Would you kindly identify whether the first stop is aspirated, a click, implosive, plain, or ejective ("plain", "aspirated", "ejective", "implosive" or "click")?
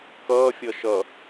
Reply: plain